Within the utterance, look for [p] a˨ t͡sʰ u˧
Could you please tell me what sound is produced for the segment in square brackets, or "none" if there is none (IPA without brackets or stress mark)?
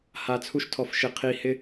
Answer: h